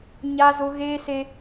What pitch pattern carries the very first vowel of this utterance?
high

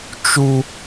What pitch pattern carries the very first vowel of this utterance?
high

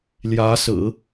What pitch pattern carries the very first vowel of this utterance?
rising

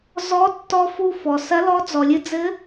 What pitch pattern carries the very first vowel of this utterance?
rising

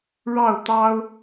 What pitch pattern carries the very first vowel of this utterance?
falling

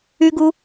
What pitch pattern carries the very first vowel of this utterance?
high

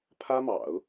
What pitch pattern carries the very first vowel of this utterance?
high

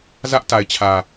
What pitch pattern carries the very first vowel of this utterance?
high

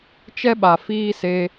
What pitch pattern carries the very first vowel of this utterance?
high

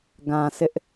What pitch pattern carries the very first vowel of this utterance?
low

